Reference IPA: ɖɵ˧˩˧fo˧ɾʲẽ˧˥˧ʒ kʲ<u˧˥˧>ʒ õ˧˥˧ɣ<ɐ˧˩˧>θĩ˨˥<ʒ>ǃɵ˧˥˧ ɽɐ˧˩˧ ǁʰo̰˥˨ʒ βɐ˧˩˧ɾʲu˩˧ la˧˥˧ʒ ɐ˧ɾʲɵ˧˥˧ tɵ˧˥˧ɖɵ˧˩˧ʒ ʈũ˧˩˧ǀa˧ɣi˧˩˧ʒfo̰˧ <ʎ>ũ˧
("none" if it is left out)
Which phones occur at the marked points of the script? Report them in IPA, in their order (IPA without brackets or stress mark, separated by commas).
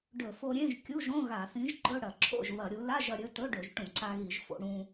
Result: u˧˥˧, a˧˩˧, ʒ, ɽ